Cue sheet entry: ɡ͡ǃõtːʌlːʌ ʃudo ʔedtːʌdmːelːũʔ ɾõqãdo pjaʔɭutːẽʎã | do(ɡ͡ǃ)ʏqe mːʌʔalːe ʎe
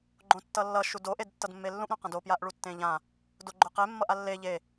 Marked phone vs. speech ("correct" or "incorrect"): correct